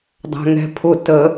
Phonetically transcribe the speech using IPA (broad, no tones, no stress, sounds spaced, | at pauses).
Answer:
dˤ æ̤ ŋ ɛ̤ pʰ ʊ t ə